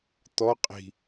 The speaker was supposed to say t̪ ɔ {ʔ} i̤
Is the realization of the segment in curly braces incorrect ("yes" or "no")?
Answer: yes